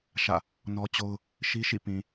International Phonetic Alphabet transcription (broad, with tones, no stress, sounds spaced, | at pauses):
ʃ ä̰˦˨ | n ɔ˦ t͡ɕ o˦ ʊ̯ | ʃ i˦ ʃ ḭ˦˨ p ĩ˨